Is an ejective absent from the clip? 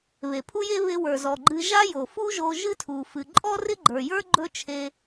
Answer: no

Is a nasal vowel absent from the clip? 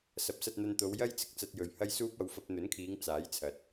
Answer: yes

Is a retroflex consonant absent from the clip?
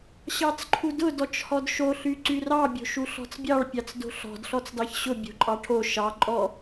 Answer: no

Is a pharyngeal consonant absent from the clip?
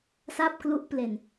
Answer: yes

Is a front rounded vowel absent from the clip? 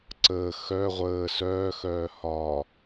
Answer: no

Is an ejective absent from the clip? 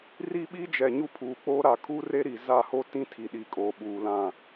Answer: no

